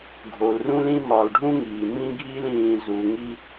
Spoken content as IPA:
ɡʱ o˨ l r ũ˦ l ĩ˦ m ɒː˨ l ɖʱ ũ˦ ŋ iː˨ m ĩ˦ ɡʱ iː˦ l ĩː˨ z u˨ ŋ i˦

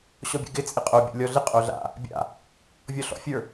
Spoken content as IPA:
ɕ ɔ bʲ ɛ̰ ɡ ɪ t͡sʼ ɪ qʼ o bʲ o̰ lʲ ɔ ɮ ɪ qʼ o ɮ a̰ | bʲ a̰ | vʲ ɔ ɬ ɔ̰ fʲ ə˞

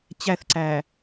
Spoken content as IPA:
t͡ɕ æ θ ǀ æ

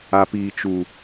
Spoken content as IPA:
a˦ p iː˦ t͡ʃ u˦

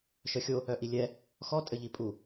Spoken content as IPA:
ʃ œ xʲ o | œ ʔ i lʲ ɛ | x ɔ tʼ ɘ ʎ i pʼ u

